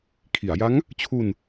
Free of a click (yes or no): yes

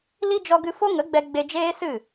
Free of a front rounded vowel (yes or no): yes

